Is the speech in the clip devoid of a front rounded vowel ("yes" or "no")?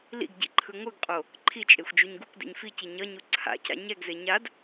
yes